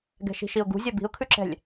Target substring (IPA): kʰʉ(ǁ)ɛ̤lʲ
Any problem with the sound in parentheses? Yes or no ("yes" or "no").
no